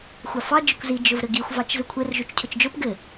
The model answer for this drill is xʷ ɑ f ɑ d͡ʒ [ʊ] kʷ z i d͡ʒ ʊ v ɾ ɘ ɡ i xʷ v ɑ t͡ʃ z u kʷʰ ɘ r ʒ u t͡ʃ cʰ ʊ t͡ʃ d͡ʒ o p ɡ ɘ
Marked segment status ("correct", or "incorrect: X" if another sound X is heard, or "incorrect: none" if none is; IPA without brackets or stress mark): correct